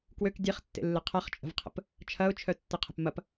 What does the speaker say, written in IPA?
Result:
kwøk dʲeχtːḛlːɪ qʰɐχt͡ʃʼə̤vqʰə̰p | t͡ʃʰɐʊ̯t͡ʃʰœtːɪqʰə̤p mɐp

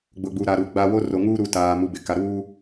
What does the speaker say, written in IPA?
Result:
ɡ͡bʊ˨ɡ͡bu˨ɾa˨ ɾuː˨ɡ͡ba˦ wo˦ro˨ŋuː˦ɾu˨ taː˨ mu˨bɪ˨ka˨ ɾuː˦

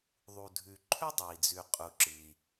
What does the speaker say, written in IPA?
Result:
ðˤu˩dʱʉ˩ ǃʰɵ˥dˤɐ˩i̯d͡zʉ˩ qʼu˩ǁɨ˩i̯

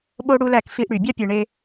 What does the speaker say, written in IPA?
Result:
ɓo˦ ɽu˦læ˦˨kfi˦ʔɽy˨ bʲɑ˦pʲɯ˨ɳe˦

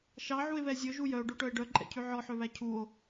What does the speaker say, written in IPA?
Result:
ʃɑʕue̯βɛ zʲɵʒu jœo̯ɖoʈœe̯ ɖœǃʼɛ̰cʰʉ ʕɔħøβæ cʰuo̯

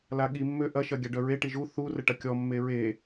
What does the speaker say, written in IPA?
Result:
laɠi mːøʔɐ ʃɐɡʲaɖœɹe ʈiʒu θu rəʈɐkʲɔ mːeɹe

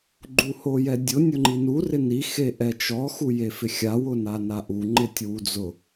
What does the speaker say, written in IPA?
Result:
ɡ͡ǃuhojɛdʲʊ nʲʊŋ͡ǃinu rɪni xeʔɛt͡ʃɔ xujefɪxʲaw ʊnanaʔu ŋ͡ǃɪtʲwud͡zʊ

